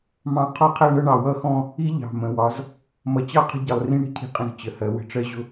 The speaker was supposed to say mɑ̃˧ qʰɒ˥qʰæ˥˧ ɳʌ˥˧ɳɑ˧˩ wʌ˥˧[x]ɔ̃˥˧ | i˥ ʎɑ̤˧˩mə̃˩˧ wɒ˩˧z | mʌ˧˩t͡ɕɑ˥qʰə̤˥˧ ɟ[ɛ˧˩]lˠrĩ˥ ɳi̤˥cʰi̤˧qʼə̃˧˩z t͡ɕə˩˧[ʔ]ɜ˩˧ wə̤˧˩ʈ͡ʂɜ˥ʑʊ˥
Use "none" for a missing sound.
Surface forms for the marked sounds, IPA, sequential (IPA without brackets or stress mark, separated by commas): x, ɪ˧˩, h